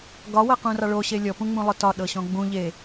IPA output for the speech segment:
ɡ ɒ w ɤ q ũ r ɑ ɭ o ɕ e lʲ ɔ p ũ ŋ͡m ũ lˠ ʊ t ɒ ɗ ɤ ɕ ɔ̃ ɡ͡b ũ ʎ e

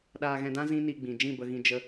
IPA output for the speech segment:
ɗ aː˧ ɣ ɛ̃˧ d ã˦ z ĩ˦ n i˧ ɡ͡b ĩ˨ d͡ʒ ĩ˦˨ b ə˧ ɣ ĩ˧ d͡ʒ ə˦

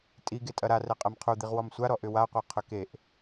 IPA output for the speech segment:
tʼ i ɡ e tʼ ɐ ɾ a r ɛ qʼ ɛ m qʰ u d̪ i ʁ w ɔ m sʷ a ɾ ɔ ʔ ʏ w a qʷ e qʰ ʏ k e ʔ

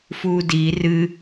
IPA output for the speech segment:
f uː d iː r ɨ

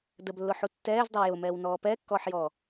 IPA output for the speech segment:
d ə b lː ʊ ħ u tː ɛː z dˤ ə w j ʊ m ɛː w n ɔː p ɛː kː ɔː ħ j ɔː

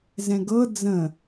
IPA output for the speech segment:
z ɛ̃ ɡ ɤ d͡z ə̃

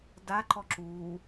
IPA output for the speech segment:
d a ǃ ɔ ǁ u

